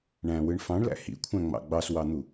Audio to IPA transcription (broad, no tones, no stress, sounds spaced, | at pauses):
ɳ æ̃ w ɯ ɳ f ɑ̃ ɳ l æ̰ h ḭ kʷʰ æ̃ ŋ͡m ɑ̰ ɡ͡b ɑ s w ɑ n̪ u